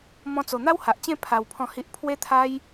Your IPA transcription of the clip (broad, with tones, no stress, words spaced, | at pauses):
mɔ̃˧t͡so˨˩ n̪a˦wha˨ʔt͡ɕẽ˥˧ pʰa˧wpʰɔ̃˥˧hi˦ʔ pʰwe˦t̪ʰa˦j